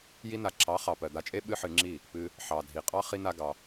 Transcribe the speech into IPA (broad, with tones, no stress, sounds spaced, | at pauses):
j i˦ n a˧ ǁʰ ɑ˨˦ χ ɑ˨ p ɜ˨ d̪ a˧ t͡ʃʼ e˦ ɓ ɨ˦ ħ ɨ˧ ŋ͡ǁ i˦˨ | p ɨ˧ | ħ ɑ˨ dʱ i˨ qʼ ɑ˦ χ i˦ n a˦ ɡ ɑ˧